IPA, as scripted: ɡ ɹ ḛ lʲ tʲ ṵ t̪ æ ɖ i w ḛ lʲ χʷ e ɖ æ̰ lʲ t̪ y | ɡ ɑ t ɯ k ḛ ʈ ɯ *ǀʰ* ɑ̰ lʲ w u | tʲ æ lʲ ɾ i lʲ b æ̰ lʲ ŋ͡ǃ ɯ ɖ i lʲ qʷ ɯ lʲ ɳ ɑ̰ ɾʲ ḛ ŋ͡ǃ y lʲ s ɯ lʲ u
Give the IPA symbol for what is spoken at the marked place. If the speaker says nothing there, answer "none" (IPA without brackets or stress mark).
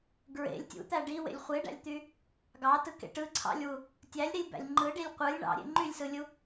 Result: ǀʰ